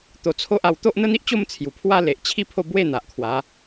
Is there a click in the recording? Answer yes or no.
no